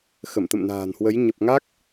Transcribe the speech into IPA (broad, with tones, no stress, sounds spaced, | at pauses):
x ə˧˩ m t̪ ə̰˧˨ m n a̤ː˨˩ n h w ə˨˦ j ɲ ə˨˩ p̚ ŋ a˦˥ k̚